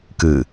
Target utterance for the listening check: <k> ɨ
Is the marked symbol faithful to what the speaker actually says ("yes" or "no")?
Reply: yes